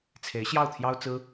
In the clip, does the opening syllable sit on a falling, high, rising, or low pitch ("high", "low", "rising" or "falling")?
rising